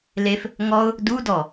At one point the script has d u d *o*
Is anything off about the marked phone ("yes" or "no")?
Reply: yes